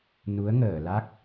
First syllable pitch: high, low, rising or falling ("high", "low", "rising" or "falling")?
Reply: rising